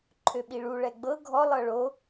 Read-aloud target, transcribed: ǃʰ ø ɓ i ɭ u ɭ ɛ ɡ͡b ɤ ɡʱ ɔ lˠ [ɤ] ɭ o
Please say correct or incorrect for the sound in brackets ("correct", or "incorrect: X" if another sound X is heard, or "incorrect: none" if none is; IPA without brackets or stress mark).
correct